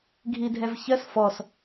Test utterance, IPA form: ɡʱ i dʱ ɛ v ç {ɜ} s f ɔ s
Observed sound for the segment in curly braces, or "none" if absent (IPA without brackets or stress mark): ɜ